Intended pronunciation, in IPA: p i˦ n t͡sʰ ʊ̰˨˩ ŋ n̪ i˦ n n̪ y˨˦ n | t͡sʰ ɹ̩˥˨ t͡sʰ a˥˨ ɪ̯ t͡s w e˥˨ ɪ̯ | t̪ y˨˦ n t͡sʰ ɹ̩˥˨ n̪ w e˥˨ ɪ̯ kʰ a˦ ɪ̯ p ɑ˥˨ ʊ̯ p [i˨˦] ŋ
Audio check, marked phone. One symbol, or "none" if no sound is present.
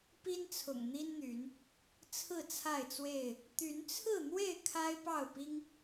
i˦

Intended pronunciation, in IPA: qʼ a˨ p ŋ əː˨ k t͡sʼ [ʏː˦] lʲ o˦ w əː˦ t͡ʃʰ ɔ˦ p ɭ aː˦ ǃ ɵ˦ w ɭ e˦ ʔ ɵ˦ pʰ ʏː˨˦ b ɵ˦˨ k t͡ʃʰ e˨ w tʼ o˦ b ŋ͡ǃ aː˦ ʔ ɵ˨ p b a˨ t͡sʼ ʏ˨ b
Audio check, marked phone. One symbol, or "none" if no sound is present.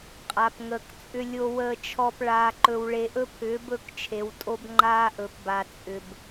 ʏ˦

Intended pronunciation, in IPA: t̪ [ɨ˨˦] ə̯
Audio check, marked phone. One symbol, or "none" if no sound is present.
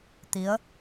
i˨˦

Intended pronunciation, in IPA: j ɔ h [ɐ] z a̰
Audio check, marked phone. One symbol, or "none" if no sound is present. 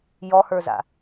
ə˞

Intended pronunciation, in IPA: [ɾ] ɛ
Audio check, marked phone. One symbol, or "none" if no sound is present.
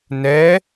n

